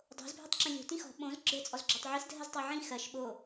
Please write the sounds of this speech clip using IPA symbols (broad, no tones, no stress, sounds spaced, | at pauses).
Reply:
dˤ o̤ z bʱ i tˤ ǁ ĩ lʲ o̤ t ĩ x ɔ̤ ɓ õ z ɡ͡ǁ ɘ t͡sʼ ɔ z ɡ͡ǁ ɔ tˤ ʕ i s dʱ ɜ z tˤ o ʕ ĩ x ɜ ʃ ɓ o